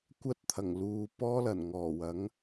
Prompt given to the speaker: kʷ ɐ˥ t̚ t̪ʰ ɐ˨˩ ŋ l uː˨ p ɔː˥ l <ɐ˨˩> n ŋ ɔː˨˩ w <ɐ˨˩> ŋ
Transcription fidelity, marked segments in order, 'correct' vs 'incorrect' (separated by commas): correct, incorrect